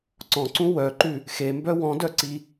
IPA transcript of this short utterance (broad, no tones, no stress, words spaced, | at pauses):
ǀɔ̃ǀũ wœǃʉ | xembœ wɔ̃dœǀi